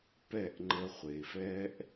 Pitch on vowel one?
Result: falling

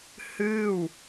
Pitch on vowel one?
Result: falling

